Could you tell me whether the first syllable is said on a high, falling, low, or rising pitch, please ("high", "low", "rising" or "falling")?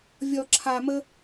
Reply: low